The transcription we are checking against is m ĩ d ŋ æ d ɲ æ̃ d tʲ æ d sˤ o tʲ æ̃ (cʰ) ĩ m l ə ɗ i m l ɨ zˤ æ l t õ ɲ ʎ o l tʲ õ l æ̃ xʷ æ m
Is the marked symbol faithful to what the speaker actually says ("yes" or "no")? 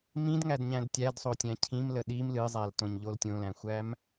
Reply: yes